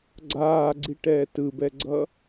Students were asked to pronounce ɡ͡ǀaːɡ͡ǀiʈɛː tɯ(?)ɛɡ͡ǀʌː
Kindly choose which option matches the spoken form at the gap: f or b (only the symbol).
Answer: b